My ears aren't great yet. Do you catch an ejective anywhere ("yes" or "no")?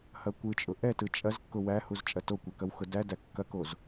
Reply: yes